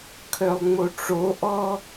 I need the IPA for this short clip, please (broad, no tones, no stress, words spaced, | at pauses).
kʰœlˠŋ͡moʈ͡ʂoʔɔ